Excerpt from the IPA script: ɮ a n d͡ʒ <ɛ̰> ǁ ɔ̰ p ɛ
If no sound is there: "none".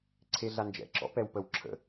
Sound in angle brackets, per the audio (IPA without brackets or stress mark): ɛ̰